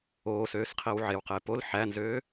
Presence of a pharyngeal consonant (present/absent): present